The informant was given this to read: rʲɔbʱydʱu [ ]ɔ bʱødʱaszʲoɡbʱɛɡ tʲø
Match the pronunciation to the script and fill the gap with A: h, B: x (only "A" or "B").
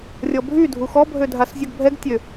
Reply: B